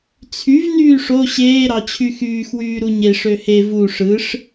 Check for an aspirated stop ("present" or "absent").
present